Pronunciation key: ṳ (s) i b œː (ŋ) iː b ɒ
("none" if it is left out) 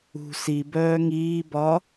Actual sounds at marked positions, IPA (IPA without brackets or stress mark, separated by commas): s, ŋ